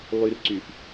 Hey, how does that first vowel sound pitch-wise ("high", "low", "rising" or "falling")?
low